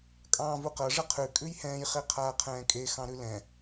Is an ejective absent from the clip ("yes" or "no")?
no